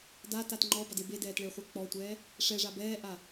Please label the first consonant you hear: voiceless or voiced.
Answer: voiced